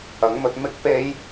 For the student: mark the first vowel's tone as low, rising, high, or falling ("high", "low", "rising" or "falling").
rising